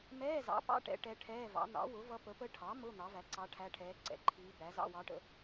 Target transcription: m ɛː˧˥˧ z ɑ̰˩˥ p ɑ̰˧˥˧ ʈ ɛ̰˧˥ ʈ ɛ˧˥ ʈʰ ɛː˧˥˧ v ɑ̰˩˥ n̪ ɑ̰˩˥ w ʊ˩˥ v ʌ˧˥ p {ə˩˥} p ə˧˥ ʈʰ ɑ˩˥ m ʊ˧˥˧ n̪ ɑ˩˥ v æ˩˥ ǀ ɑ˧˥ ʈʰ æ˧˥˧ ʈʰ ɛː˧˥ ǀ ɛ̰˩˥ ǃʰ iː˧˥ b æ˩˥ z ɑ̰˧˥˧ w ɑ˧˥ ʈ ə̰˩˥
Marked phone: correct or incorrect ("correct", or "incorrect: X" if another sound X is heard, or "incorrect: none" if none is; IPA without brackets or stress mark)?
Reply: correct